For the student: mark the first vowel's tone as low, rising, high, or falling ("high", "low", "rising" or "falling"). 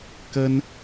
high